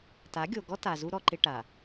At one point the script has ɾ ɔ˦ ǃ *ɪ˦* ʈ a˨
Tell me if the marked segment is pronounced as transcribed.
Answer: yes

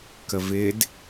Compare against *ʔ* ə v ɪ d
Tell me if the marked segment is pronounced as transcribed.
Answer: no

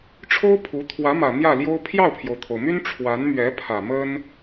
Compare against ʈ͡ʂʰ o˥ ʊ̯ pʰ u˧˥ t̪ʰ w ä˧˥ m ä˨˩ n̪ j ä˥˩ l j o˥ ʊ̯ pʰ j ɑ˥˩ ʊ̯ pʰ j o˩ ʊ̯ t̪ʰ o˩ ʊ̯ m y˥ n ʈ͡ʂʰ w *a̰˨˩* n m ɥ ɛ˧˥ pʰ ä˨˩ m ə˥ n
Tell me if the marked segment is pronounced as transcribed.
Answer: no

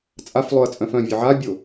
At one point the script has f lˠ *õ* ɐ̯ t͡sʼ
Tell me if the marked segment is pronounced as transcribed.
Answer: no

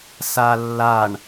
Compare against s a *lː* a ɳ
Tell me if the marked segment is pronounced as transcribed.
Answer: yes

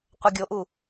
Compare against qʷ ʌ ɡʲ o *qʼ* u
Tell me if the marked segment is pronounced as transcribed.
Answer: no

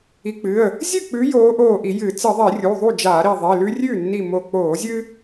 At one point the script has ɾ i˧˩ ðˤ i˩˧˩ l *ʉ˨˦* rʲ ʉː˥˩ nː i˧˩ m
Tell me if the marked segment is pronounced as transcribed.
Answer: no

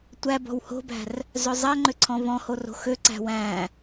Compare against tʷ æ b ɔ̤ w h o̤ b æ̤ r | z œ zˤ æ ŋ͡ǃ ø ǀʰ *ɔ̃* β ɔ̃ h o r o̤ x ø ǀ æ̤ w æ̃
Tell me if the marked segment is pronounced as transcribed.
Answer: yes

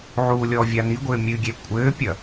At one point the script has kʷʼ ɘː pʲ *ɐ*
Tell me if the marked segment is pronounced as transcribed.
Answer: yes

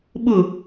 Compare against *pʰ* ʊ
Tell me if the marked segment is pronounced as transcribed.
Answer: no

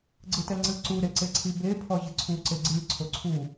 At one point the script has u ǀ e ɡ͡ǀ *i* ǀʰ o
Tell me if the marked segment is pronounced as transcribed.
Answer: no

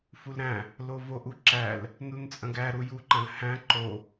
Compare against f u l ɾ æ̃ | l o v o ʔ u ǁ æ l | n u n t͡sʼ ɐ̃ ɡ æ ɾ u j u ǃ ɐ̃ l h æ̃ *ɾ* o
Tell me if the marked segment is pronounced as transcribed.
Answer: no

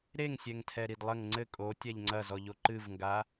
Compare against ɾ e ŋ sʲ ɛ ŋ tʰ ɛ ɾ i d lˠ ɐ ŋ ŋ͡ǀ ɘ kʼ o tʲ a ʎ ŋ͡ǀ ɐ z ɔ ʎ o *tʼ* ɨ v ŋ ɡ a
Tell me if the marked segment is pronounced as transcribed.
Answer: no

